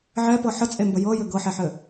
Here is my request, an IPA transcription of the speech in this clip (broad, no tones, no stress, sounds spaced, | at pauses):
ʕ ɛ p ɤ ħ ə t͡sʼ e m b ə j ɤ j ɘ ɡ ɤ ħ ɛ ħ ɘ